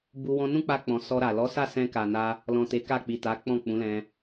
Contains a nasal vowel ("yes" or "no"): yes